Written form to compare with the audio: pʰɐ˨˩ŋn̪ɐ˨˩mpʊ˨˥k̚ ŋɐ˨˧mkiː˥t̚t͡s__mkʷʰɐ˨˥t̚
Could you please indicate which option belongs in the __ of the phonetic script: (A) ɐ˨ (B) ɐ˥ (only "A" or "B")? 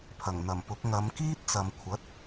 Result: A